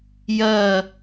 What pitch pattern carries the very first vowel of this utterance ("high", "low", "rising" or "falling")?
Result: falling